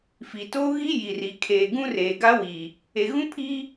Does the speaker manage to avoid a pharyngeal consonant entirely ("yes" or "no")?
yes